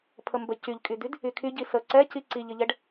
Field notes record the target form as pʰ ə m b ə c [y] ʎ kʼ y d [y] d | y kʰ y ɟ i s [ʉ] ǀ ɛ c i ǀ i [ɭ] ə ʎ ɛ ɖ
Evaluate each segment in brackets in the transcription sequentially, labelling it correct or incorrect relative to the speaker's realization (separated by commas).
correct, correct, incorrect, incorrect